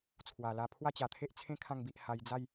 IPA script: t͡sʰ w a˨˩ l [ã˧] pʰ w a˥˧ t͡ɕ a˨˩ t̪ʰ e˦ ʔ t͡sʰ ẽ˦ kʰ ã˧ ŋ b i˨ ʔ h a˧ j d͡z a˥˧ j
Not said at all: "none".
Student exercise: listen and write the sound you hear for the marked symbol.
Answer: a˧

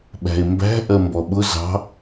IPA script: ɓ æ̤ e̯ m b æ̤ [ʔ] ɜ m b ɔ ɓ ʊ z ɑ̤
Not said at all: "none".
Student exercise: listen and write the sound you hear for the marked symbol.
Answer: ʔ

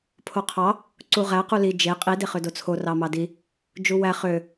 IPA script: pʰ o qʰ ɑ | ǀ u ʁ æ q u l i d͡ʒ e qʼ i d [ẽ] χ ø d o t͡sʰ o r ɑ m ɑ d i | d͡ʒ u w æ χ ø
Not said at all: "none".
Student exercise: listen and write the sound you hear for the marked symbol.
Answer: e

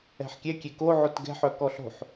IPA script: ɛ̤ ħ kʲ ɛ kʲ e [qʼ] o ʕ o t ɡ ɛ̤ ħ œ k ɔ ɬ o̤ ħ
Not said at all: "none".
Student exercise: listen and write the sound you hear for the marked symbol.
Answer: k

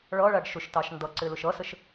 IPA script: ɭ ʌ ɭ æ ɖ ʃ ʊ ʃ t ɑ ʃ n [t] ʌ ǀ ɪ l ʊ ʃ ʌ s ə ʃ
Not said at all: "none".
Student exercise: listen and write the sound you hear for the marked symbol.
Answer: d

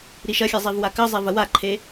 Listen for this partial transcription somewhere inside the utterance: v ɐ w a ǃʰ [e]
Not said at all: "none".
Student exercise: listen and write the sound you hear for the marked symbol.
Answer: e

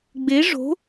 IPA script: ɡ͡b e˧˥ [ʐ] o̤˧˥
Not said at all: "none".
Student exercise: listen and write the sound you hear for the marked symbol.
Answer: ʐ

